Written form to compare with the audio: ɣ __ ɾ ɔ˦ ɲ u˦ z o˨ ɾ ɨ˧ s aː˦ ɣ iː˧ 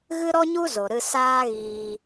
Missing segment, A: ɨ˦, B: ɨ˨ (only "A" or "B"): A